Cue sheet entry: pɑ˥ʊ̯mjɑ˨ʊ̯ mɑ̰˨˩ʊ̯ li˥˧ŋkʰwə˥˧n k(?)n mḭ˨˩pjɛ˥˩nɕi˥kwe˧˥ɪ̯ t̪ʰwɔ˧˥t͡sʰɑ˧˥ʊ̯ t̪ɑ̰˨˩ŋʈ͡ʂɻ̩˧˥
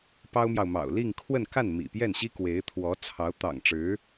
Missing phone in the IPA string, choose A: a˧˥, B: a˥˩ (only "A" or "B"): B